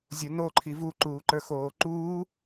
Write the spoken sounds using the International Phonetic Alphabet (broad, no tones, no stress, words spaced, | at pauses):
zʲono ǃʰivu ǃuːǃə˞xoːǃuː